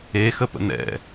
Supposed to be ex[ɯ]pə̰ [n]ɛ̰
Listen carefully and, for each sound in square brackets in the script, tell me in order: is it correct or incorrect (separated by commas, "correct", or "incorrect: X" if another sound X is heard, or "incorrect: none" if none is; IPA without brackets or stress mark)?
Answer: incorrect: ə, correct